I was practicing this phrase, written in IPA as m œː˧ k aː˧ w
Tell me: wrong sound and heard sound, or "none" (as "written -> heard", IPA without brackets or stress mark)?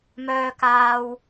none